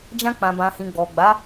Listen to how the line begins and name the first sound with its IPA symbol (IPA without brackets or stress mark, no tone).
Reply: d͡ʒ